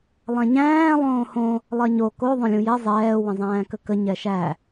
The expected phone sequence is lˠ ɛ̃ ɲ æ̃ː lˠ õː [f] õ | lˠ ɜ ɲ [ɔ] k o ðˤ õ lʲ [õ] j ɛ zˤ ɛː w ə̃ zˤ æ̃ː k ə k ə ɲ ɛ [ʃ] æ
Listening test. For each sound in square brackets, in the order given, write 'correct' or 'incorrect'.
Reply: incorrect: h, incorrect: o, incorrect: ũ, correct

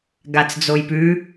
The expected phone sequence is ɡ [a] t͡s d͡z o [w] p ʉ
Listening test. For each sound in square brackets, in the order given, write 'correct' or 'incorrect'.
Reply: correct, incorrect: j

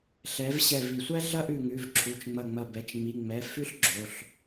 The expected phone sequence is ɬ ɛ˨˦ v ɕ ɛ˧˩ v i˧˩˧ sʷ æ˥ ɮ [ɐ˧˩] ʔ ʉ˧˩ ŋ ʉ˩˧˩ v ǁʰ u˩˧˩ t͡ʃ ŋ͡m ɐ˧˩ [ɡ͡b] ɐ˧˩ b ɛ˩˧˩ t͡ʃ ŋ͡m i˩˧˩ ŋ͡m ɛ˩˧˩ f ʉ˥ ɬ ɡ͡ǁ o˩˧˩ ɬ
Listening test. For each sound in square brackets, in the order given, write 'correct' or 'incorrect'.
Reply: incorrect: ɐ˥, incorrect: ŋ͡m

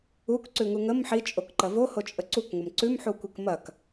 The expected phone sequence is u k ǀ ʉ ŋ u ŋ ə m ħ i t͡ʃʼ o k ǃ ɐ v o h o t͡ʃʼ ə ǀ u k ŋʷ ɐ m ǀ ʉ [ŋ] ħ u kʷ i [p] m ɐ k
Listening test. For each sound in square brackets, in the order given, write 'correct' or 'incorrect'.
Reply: incorrect: m, incorrect: k

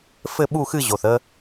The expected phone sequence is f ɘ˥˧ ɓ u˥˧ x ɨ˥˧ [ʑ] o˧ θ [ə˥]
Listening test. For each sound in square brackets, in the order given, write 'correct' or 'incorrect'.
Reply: correct, correct

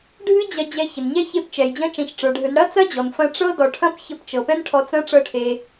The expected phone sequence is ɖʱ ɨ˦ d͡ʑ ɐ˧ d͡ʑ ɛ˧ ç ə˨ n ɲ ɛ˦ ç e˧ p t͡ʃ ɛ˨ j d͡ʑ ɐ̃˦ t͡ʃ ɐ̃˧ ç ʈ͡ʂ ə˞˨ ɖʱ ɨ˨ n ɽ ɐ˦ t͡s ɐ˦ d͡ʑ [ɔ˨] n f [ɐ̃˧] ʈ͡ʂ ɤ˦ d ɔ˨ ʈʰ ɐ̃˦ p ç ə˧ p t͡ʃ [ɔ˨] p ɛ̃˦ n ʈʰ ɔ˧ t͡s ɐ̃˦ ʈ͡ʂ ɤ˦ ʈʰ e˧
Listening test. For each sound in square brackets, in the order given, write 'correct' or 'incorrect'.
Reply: correct, correct, incorrect: ɤ˨

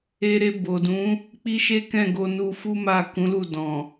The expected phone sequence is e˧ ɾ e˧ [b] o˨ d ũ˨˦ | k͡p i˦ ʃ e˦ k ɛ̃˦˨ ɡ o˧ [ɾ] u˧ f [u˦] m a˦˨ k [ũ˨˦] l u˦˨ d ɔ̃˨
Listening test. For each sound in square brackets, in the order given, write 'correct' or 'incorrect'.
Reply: correct, incorrect: n, correct, correct

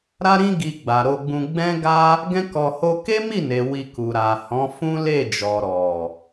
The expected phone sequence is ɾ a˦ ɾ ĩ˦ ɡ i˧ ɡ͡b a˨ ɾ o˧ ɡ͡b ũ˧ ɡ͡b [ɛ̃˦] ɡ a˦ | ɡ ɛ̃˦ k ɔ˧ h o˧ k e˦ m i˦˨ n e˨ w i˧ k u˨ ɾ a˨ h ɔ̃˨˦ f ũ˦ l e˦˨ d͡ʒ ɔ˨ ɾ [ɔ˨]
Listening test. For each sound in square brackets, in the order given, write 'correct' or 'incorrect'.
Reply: correct, correct

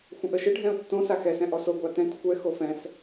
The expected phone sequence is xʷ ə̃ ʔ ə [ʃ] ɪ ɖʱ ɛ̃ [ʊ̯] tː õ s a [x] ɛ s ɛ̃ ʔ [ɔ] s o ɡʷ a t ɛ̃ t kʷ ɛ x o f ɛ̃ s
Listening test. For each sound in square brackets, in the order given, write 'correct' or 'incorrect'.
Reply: correct, correct, correct, correct

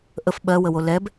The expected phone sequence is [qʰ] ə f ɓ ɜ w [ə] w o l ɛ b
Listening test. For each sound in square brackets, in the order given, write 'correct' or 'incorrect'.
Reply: incorrect: ʔ, correct

